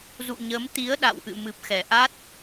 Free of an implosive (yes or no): no